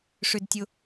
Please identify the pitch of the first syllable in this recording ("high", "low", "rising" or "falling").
high